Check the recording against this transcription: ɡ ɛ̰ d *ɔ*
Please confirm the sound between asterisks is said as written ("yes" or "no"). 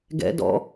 no